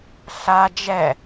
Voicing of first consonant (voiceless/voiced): voiceless